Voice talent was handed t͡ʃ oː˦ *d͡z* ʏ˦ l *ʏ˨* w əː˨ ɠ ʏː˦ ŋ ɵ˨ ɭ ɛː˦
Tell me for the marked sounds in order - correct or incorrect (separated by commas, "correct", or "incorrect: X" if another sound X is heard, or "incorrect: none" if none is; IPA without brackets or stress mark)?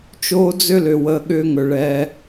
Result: correct, correct